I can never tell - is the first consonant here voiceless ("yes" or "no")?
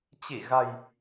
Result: yes